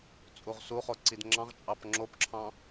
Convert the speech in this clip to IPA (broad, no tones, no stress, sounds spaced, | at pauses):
t͡sʼ u ʁ s u χ o ǀ i d ŋ͡ǁ ɑ̃ ʁ t͡ʃʼ ɑ p ŋ͡ǁ o p ǁʰ ɑ̃